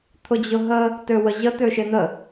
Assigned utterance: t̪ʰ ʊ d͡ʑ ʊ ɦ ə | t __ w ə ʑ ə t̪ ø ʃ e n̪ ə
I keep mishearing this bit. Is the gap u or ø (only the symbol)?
ø